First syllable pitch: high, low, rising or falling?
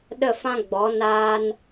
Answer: falling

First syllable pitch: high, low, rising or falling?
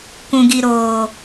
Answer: low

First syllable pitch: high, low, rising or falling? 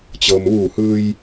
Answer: low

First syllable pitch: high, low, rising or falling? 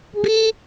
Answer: high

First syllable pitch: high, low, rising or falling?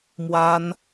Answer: high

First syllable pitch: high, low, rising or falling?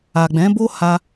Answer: low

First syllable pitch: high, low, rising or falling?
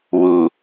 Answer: low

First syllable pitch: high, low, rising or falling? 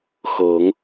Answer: rising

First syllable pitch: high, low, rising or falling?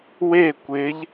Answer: falling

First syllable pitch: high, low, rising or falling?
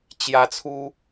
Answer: high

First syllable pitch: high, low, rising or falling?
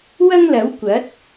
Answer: high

